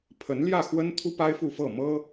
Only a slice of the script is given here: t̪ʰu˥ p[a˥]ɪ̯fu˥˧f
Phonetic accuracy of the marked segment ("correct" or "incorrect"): correct